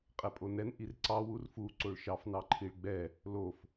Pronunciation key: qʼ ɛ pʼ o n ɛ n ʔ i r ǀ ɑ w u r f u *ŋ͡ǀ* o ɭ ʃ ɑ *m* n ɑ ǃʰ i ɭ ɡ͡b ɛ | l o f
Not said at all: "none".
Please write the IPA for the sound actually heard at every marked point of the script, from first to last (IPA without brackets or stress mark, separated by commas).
ǀ, f